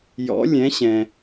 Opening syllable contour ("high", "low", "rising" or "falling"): rising